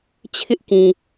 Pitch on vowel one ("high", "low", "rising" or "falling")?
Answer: high